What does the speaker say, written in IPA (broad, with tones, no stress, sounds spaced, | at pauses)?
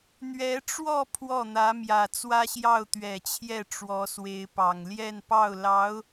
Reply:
n̪ ɥ ɛ˧˥ ʈ͡ʂ w ɔ˥˧ pʰ w ɔ˥˩ n̪ ä˧˥ m j ä˨˩ t͡s w ä˥ ɕ j ɑ˥˩ ʊ̯ t̪ ɥ ɛ˨˩ t͡ɕʰ j ɛ˥˩ ʈ͡ʂ w ɔ˧˥ s w e˧˥ ɪ̯ p ɑ˨˩ ŋ l j ɛ˥˧ n p ɑ˥˩ ʊ̯ l ɑ˧˥ ʊ̯